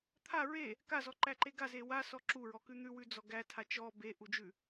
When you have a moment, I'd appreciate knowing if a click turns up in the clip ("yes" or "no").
yes